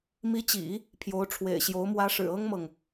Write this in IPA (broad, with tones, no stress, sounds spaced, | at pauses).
m i˧˥ t͡ɕ ḭ˨˩˦ | pʰ j o˧˥ ʊ̯ ʈ͡ʂʰ w ḛ˨˩ ɪ̯ ɕ j o˧˥ ʊ̯ m w ä˧˥ ʂ ɻ̩˨˩ ɤ˥ ŋ m ɤ˨ ŋ